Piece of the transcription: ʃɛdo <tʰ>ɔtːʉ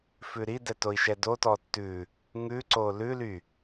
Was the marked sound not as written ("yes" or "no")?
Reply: yes